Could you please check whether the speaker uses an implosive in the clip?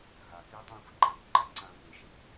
no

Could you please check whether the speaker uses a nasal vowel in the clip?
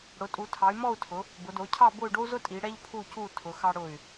no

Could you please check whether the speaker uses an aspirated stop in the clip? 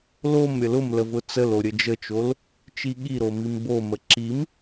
no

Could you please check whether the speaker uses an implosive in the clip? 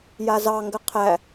no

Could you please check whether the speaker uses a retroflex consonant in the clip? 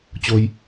no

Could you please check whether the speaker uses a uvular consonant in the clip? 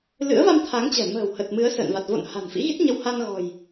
no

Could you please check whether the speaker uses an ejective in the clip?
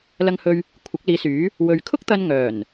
no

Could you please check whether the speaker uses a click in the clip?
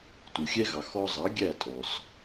no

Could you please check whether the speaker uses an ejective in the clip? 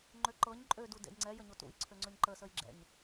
yes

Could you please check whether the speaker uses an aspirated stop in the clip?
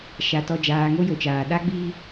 no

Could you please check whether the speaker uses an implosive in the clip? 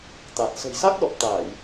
yes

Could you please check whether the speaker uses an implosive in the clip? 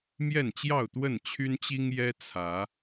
no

